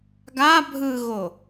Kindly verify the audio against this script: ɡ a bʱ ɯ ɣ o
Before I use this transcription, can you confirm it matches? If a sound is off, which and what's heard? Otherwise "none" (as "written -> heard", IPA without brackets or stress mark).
none